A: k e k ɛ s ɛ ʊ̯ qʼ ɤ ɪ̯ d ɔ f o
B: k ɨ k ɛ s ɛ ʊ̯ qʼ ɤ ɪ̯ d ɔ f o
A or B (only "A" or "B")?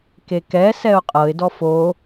A